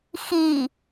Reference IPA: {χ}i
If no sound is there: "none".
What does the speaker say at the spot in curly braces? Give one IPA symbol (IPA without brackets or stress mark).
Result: x